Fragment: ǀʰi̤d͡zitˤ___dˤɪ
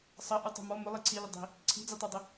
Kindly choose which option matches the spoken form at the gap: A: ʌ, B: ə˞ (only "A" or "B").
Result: B